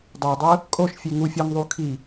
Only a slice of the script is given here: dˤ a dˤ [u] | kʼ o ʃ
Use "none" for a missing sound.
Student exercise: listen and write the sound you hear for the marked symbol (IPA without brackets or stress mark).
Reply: ɯ